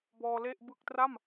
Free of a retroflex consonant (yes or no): yes